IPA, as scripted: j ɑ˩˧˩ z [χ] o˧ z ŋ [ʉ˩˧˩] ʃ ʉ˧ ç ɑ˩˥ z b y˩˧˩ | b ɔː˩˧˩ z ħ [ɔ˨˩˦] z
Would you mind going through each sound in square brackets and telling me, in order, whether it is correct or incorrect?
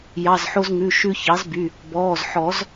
incorrect, correct, correct

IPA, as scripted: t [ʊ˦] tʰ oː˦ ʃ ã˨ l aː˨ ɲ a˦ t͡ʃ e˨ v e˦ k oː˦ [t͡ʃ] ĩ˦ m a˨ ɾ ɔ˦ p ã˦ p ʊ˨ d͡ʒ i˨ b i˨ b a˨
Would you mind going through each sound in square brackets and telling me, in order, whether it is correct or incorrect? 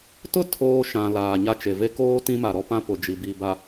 incorrect, incorrect

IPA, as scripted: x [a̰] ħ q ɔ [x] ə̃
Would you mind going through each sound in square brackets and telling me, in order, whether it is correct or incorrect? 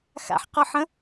correct, incorrect

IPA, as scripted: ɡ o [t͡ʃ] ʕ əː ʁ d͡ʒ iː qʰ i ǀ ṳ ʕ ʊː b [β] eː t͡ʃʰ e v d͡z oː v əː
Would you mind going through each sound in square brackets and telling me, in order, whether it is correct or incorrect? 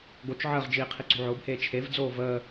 correct, incorrect

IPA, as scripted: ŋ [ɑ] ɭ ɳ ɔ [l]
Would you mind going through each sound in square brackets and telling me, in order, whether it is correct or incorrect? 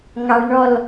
correct, correct

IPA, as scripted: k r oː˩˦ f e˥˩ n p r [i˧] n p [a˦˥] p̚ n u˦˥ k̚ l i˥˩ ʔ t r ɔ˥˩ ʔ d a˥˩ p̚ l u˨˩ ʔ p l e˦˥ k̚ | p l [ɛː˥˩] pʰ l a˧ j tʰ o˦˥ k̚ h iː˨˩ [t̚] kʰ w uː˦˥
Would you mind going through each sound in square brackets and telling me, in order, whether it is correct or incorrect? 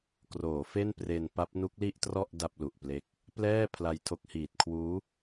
incorrect, correct, correct, correct

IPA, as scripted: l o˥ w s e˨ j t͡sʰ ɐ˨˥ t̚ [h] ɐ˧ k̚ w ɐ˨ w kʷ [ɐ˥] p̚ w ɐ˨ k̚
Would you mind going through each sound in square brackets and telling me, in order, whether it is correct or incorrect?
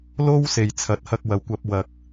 correct, incorrect

